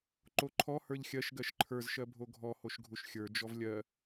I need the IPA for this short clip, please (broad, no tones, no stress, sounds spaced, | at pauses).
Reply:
ǃ o ǃʰ ɔ h ə˞ ʎ xʲ ɜ ʃ ɡ ɜ ʃ ǃʰ ə˞ z ʃ ɜ bʱ o ɡʱ ɔ h o ʃ ɡʱ u ʃ xʲ ə˞ d͡ʒ ɔ v lʲ ɜ